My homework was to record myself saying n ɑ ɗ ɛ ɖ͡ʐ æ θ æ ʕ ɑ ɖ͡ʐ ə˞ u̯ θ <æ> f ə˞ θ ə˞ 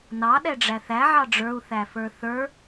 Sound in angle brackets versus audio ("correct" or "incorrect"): correct